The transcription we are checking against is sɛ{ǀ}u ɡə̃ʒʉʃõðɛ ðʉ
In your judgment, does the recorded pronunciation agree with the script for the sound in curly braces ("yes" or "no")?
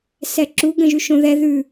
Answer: no